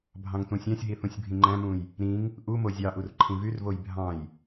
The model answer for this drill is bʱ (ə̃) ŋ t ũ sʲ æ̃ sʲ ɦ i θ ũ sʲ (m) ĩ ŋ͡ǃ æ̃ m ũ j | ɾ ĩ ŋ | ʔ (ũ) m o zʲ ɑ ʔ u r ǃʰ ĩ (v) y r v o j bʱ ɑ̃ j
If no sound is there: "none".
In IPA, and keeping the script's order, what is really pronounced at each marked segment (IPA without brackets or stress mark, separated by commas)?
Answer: ɑ̃, bʱ, u, v